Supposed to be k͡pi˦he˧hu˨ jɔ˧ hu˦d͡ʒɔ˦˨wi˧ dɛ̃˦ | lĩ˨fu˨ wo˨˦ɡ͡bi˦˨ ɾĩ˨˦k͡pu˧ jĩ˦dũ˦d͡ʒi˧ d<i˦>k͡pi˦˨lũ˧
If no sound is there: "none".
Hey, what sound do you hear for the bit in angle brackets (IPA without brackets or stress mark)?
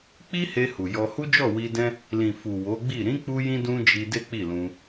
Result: e˦